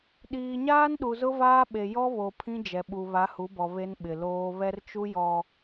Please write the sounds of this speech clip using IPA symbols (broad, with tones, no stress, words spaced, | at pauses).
ɗiː˨ɲaː˦n ɗu˨zʊ˦vaː˦ɓe˨ jɔ˦βo˨ pʰĩ˦d͡ʒɛ˨ɓu˨ βa˨˦hu˨˦bɔ˨ βe˦nɓɪ˨loː˦ βɛ˦rt͡ʃu˦jɔ˨